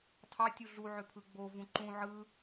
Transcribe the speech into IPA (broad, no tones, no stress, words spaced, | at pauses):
tʰɑtʲu ɮuʕøpʰɯ ɡ͡bovũ ǃũ ʕɯ